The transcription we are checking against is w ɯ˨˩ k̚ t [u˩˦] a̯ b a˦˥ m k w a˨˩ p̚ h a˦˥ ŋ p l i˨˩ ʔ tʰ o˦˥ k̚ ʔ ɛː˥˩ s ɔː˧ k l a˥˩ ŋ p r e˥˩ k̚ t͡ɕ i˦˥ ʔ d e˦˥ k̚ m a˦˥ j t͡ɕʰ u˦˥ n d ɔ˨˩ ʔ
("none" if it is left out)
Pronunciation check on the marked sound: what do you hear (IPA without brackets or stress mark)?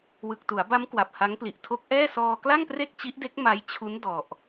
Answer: u˩˦